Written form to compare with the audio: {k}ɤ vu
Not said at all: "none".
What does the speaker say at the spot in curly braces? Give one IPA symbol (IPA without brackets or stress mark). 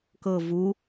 k